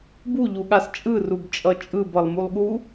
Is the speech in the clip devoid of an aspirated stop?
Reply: yes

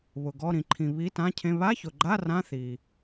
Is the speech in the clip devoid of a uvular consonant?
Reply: yes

